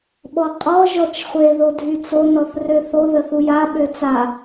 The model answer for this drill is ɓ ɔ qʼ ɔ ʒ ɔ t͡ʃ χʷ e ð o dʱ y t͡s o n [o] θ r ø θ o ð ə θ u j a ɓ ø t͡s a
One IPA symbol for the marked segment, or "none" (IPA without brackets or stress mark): ɔ